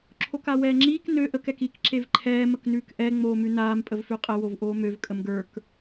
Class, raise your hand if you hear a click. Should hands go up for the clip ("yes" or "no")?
yes